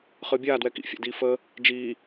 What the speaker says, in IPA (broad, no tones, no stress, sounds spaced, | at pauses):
χ ɨ bʲ aː d w ɛ k ḭ fʲ a̰ d iː f əː | d͡ʒ iː